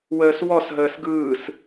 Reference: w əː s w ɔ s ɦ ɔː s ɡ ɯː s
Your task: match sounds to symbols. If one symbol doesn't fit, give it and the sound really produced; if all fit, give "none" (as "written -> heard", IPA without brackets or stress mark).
ɔː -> əː